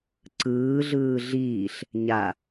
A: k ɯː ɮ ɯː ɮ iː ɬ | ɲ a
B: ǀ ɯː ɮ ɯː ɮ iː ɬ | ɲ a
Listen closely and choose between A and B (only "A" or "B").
B